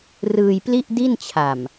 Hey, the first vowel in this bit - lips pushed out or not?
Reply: no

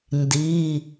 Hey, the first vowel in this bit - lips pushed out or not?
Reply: no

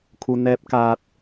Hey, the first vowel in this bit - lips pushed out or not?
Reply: yes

